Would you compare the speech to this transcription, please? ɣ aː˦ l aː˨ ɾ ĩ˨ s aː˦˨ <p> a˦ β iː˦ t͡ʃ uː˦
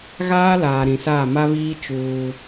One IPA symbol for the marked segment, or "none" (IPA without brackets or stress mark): m